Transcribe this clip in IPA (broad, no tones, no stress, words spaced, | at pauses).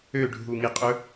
øɖʱuŋiqʼɵ